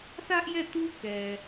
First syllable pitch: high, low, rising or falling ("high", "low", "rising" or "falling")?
high